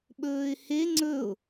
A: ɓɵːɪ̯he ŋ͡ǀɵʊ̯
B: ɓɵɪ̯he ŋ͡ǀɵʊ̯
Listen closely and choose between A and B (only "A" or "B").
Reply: A